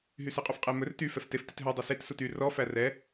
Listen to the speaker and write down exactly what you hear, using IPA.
ɦ y s e qʼ u f qʼ e m ɵ r t y f ɛ f t e f t i t ɦ œ dˤ i s e t s u t y r ɔ f æ r ɛ

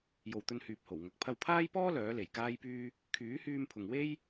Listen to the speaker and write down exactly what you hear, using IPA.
j o˨ w t̪ ɵ˧ n h yː˨ p̚ h o˨˩ w ŋ ɐ˨ k̚ pʰ ɐ˧ w pʰ aː˥ j p ɔː˥ l œː˨˥ l e˨˩ j k aː˥ j p yː˥ | kʰ yː˨˥ h yː˧ m pʰ ʊ˨ ŋ w e˥ j

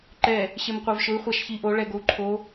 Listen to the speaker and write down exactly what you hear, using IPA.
ǃ ɛ | ɕ e m qʷ a v ʃ ʊ i̯ χʷ a ʃ ç i ʔ o ɭ ɛ ɡ o u̯ ǃʰ o

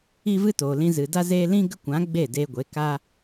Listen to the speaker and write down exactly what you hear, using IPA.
i˦ v ɨ˦ t oː˨ l ĩ˧ z ɨ˨ d a˦ z eː˧ l ĩ˦ ɡ ə˦ kʷ ã˨˦ ɡ͡b e˦˨ d eː˧ ɡʷ e˨˦ k a˦

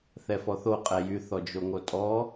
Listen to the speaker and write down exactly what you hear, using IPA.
θ ɛ f ɔ θ o qʼ ɛ j y θ ɔ d͡ʒ o ŋ o tʼ ɔ

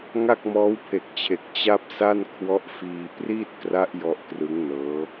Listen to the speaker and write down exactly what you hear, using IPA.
ŋ a˥˩ k̚ m ɔː˦˥ w pʰ e˨˩ k̚ t͡ɕʰ e˨˩ k̚ t͡ɕ a˥˩ p̚ s a˥˩ n kʰ w ɔ˦˥ ʔ f iː˧ p r iː˥˩ t̚ k r a˦˥ ʔ j ɔ˦˥ ʔ k r ɯ˦˥ ŋ n ɤː˦˥

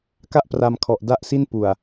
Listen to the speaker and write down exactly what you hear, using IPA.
k a˥˩ ʔ p r a˧ m kʰ ɔ˨˩ ʔ d a˥˩ ʔ s i˥˩ n p u˨˩ a̯

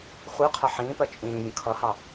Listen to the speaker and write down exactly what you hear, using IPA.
χʷ ɜ qʰ ʌ ħ ĩː p ɜ t͡ʃʼ ĩː vʲ ə̃ kʰ ʌ h ɑ

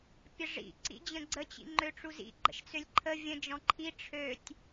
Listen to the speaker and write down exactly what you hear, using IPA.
pʲ ə ʐ ḭ ǀ ḭ d͡ʑ ə̃ ɡ͡ǀ ə t͡ɕ ḭ ŋ͡ǃ ø ʈ͡ʂ u z ḭ ɡ͡ǃ ə̰ ʃ t͡s ø lʲ ǃʰ ə vʲ ə̃ d͡ʒ ɔ̃ ǃʰ i ʈ͡ʂʰ ø tʲ

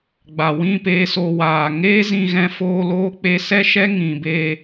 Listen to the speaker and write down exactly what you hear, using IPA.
ɡ͡b a˨ w ĩ˦˨ p eː˧ s o˨ w aː˨ ŋ eː˦ z ĩ˧ ɣ ɛ̃˧ f oː˧ l oː˦ k͡p e˧ s ɛ˦ ʃ ɛ˦ ŋ ĩ˨ b e˧

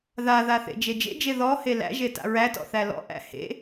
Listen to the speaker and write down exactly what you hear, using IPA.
ð a ð a θ ḛ d͡ʒ e d͡ʒ ḛ d͡ʒ e ð ɔ h e l æ̰ ʒ e t a̰ ɹ æ t ɔ̰ θ æ l ɔ̰ ʔ æ̰ h ḛ

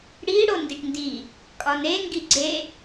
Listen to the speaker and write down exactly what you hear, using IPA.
ɽ i ɽ o n d i ʈ n d i | kʼ ɒ n e ŋ ɡ i ɡ͡ǀ e

